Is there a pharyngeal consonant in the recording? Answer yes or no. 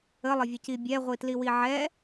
yes